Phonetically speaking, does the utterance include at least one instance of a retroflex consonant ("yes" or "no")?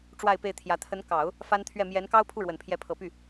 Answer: yes